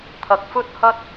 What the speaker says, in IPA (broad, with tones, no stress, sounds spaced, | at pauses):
t̪ʰ ɐ˧ k̚ f ɵ˥ t̚ h ɐ˥ t̚